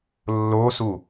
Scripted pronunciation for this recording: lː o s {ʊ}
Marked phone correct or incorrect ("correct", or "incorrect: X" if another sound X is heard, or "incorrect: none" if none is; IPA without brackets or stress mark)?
incorrect: u